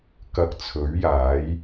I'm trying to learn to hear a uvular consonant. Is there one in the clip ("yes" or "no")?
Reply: no